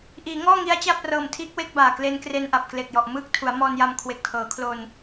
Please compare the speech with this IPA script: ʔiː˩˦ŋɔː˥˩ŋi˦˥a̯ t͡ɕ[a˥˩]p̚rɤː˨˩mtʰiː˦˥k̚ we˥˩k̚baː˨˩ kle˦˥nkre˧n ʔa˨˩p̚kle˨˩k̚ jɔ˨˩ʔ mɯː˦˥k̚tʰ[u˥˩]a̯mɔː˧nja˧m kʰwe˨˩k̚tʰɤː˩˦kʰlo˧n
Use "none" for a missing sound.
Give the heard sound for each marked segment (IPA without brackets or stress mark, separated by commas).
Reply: a˥˩, u˩˦